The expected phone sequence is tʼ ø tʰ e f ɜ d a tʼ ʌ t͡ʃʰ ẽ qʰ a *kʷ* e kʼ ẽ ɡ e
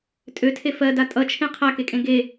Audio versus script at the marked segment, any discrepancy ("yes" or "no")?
yes